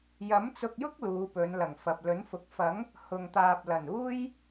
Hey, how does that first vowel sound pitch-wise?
rising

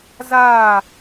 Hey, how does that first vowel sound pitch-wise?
falling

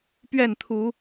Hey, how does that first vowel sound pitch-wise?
falling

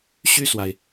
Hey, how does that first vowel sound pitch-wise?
falling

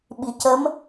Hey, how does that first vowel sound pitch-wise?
low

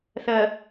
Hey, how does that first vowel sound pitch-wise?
low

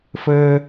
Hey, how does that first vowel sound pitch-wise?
high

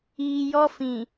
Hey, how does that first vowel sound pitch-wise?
low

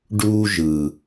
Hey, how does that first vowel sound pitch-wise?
high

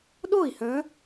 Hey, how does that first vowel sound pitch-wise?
falling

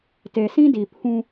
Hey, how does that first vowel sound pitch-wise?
low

